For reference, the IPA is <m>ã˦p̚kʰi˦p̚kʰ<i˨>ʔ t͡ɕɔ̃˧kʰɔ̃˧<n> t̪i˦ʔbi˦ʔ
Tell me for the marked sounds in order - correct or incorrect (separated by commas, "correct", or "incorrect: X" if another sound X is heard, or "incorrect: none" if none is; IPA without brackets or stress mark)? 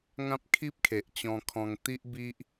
incorrect: ŋ, incorrect: e˨, incorrect: ŋ